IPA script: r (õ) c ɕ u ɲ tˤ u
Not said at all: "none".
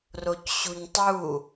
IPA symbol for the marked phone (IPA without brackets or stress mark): o